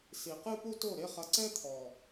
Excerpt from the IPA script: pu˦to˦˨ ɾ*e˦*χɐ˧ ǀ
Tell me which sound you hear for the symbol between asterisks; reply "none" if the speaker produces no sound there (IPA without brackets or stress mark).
e˦